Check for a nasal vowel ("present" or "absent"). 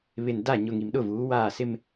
absent